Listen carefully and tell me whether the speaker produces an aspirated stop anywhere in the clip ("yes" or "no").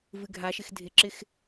no